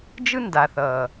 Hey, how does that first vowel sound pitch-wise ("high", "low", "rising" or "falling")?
high